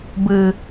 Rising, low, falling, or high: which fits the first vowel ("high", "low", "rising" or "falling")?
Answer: low